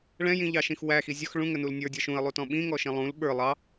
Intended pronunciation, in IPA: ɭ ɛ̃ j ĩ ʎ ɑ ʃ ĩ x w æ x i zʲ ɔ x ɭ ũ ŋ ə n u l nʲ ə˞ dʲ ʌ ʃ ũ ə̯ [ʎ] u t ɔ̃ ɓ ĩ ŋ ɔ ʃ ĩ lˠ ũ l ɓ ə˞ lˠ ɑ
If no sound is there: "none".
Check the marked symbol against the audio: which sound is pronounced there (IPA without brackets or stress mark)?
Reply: lˠ